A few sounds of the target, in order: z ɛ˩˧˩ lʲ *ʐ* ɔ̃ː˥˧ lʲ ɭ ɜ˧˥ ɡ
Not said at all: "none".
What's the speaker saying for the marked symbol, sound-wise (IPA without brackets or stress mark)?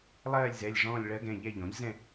ʐ